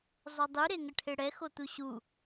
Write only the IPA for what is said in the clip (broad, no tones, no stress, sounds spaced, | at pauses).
zˤ o dˤ u ɾ e ŋ ə ʈʰ e ɽ ɛ x o t̪ u ɕ u